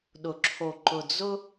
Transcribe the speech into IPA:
ɗ ʊ˨ ǁʰ o˨ ǃ ʊ˨ d͡z ʊ˦

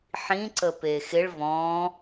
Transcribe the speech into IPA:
ħ ĩ ǀ ə p e x ɪ ɭ v ɔ̃ː

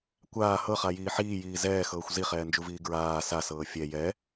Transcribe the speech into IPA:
kʷ aː h ɤ χ a j iː ħ iː j iː z ɛː x ɤː xʷ z i χ ɛː n d͡ʒ u v iː ɡ ɹ aː s a s ɤː fʲ ɛ j ɛ

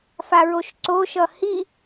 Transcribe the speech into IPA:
f a ɹ o ʃ ǀ o ʃ ʌ h i

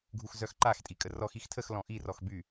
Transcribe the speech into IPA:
ɡʱ u x z œ x ǃ a x tʼ i kʼ ə r ɔ x i x tʰ ə x l ɔ̃ ʔ i r ɔ x b y

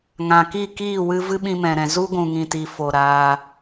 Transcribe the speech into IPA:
ŋ ã˨ k i˦˨ k iː˦˨ w ɨ˧ v ɨ˦ ɓ ĩ˧ m ɛ̃˨ ɾ ɛ̃˨ z u˦ ɡʷ ũ˨ ŋ ĩ˨ t i˨ f o˨ ɾ aː˧

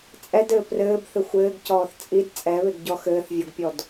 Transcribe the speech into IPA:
t͡sʼ ɛ d ɘː p r ɘː b θ ɘ xʷ ɘː ɡ c ɔː θ t͡sʼ i d t͡sʼ ɛ β e ɡ ɟ ɔ x ɘː θ vʲ ɔ ɡ pʲ ɔ d

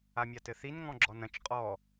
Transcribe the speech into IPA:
a mʲ a t ɘ θ i n ŋ ɔ̃ ɡ͡ǁ ɔ n ɐ̃ t͡ʃ qʼ ɔ

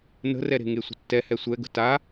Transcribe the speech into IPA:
n ə̤ r ɛ ɾ e̤ ŋ e sʷ ə̤ tː ɛ h ɛ sʷ ɛ ɡ ə̤ t a

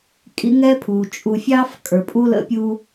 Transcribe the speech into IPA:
kʼ ḭ˥ ŋ ɛ˥ pʰ u˩ t͡ʃʼ u˨ fʲ ɑ˥ f kʼ ə˞˩ pʼ u˥ l ə̰˥ pʲ u˦

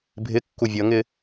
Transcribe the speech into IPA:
bʱ ɪ kː u vʲ ʌ ŋ ɪ

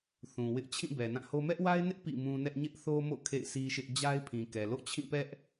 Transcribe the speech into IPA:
θ ũ˨ w ɪ˦ ʔ t͡ɕʰ ĩ˦˨ b ɛ˨ n ã˦˨ h o˦ m ɛ˦ ʔ w a˦ ɪ̯ n ɪ˦ ʔ p ḭ˦˨ m ũ˦ n ɛ˦ ʔ ɲ ɪ˦ ʔ θ o˦ m o̰˦˨ kʰ ḛ˦˨ ɪ̯ s i˦ ʃ ɪ˦ ʔ d͡ʑ a˦ ɪ̯ pʰ ĩ˨ k ɛ˨ l o̰˦˨ t͡ɕʰ ĩ˦˨ p ɛ˦ ʔ

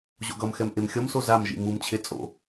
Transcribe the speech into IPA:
ʑ o̰ ɡ ʌ m x ɛ m ʔ e m xʲ ʌ m s o z a m ʒ ḭ m u m t͡ɕʰ e t͡sʼ o̰

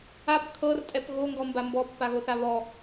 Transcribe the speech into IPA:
a p kʰ ɤ r tʼ ɛ p ɣ o ŋ ɡ ɔ m b a m b ɔ pː a ɣ o θ a β ɔ

